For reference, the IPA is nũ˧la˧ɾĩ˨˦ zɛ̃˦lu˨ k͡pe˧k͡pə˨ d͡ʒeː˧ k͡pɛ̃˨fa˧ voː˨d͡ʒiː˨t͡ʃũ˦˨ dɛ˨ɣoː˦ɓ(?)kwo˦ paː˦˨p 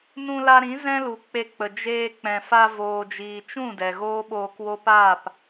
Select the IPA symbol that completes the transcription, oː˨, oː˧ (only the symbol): oː˧